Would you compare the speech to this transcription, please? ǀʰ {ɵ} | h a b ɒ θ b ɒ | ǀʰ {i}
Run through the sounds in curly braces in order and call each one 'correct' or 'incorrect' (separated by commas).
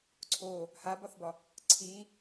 incorrect, correct